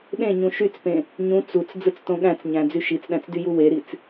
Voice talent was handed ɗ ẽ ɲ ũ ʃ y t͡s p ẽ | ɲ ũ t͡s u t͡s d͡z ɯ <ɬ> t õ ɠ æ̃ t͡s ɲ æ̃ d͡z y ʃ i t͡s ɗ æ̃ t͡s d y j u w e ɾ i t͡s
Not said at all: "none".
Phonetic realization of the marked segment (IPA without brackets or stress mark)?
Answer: t͡s